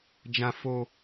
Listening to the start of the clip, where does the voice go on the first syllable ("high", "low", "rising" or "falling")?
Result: high